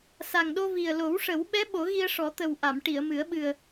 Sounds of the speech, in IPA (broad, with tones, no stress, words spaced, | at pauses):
sa˨˩ŋɗo˧ vi˨˩ə̯lo˨˩˦wʂə˨˩˦w ɓɛ˧˥ ɓo˨˩˦ɣi˧ə̯ʂɔ˨˩˦t̪ə˨˩w ʔa˨˩˨mʈi˨˩˨ə̯mɨ˨˩˦ə̯ ɓɨ˨˩ə̯